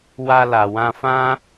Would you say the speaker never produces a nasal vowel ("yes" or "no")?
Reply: no